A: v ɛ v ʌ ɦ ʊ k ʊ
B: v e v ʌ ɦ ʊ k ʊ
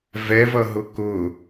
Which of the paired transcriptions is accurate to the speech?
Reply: A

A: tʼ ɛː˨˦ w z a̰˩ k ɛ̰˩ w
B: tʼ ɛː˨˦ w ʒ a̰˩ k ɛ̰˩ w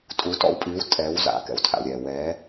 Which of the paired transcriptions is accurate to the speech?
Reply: A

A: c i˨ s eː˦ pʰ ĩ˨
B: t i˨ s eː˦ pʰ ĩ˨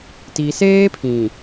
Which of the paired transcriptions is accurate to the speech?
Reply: B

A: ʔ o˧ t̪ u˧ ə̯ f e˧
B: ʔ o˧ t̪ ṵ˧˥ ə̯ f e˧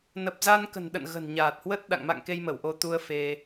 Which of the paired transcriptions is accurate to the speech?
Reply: A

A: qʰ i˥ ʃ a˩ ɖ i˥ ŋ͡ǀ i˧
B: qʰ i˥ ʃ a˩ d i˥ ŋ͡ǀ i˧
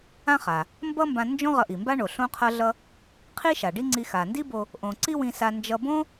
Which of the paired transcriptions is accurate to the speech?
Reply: A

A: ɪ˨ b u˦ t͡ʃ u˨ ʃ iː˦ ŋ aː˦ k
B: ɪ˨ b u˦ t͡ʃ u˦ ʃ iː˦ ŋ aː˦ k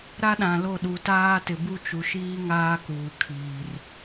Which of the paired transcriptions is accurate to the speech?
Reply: A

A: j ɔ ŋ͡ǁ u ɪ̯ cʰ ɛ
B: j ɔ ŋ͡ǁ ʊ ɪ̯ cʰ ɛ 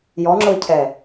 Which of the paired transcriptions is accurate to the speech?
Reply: B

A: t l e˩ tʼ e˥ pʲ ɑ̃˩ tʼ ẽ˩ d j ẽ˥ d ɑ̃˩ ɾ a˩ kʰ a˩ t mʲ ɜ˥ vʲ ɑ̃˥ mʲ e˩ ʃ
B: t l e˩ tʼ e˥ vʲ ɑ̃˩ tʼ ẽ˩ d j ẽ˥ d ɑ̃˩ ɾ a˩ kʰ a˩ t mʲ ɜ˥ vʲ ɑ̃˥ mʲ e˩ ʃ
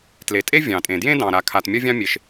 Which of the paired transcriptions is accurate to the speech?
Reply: B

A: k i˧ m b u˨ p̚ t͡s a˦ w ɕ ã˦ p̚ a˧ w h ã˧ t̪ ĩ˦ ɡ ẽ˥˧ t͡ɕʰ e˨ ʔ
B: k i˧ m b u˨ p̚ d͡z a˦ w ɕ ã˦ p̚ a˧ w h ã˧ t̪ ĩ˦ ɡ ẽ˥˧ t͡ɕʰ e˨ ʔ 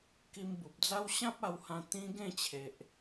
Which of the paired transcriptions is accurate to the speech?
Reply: B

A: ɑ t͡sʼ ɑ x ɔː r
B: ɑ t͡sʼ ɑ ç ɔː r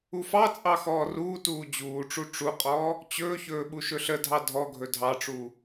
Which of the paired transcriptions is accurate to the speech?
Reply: A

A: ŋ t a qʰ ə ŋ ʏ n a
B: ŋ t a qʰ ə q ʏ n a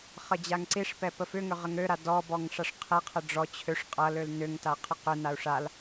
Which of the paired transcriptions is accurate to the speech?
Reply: B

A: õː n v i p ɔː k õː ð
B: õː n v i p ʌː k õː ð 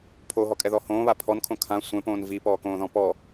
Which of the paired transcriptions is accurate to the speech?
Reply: A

